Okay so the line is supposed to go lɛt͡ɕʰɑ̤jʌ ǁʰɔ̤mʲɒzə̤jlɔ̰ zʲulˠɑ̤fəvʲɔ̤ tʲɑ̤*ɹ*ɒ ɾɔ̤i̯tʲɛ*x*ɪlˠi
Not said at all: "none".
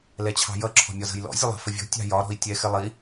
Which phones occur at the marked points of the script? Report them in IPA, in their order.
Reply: j, x

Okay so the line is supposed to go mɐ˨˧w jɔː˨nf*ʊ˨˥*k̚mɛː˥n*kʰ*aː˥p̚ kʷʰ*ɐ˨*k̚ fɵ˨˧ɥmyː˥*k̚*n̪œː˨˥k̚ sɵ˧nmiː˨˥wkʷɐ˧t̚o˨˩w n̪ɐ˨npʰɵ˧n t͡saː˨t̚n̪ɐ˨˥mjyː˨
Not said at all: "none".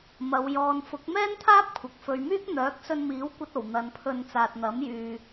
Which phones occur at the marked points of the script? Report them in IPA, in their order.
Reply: ʊ˨˥, t̪ʰ, ɐ˨, k̚

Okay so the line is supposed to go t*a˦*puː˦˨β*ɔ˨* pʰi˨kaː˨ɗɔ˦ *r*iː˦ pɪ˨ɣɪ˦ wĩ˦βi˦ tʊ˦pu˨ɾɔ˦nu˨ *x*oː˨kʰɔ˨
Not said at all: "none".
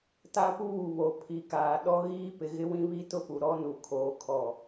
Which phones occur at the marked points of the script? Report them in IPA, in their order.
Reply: a˦, o˨, ɣ, kʰ

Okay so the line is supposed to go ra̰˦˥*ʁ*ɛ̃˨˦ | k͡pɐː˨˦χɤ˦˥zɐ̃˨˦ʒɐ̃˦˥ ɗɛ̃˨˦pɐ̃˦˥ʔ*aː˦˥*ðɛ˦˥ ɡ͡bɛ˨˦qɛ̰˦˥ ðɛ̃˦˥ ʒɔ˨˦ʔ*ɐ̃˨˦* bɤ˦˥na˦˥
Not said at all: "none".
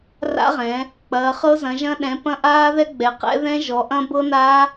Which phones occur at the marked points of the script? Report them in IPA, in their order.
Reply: ʁ, aː˦˥, ɐ̃˦˥

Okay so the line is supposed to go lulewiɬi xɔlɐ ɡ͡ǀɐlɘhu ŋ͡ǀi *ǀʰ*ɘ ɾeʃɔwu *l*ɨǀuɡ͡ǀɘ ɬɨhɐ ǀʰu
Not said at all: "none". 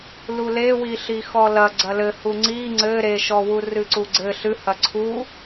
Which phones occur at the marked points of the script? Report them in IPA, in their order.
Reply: ŋ͡ǀ, r

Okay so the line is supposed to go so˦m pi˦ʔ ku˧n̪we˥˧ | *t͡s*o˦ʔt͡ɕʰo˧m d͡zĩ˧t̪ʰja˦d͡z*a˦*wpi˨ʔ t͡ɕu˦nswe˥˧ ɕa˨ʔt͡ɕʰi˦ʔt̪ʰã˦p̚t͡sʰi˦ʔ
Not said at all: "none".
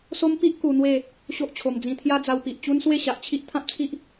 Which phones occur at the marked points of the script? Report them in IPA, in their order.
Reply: ɕ, a˧

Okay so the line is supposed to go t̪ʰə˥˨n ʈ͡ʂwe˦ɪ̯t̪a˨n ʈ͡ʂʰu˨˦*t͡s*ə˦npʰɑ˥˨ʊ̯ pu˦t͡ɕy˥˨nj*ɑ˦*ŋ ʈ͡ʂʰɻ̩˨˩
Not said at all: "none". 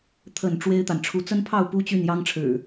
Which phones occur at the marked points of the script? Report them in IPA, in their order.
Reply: t͡s, ɑ˦

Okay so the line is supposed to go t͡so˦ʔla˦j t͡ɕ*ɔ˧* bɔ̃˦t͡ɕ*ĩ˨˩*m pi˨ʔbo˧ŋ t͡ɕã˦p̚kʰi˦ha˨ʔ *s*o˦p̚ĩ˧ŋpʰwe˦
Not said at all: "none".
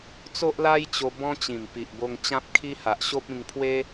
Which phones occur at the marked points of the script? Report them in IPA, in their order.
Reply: o˧, ĩ˨˩, ɕ

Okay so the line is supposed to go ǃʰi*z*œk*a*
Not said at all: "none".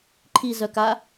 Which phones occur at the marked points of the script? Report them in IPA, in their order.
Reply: z, a

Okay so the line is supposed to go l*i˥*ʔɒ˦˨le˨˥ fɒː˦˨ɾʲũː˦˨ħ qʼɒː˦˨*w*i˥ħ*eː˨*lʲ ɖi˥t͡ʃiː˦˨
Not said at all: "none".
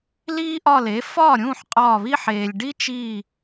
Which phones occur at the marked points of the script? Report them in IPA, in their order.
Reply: iː˥, β, eː˨

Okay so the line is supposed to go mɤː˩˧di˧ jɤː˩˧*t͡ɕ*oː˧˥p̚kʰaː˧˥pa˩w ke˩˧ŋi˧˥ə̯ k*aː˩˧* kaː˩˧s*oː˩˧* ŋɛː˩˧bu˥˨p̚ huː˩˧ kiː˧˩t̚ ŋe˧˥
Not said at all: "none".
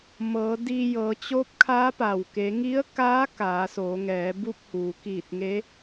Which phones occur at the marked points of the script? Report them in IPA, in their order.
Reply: t͡ɕ, aː˧˥, oː˩˧

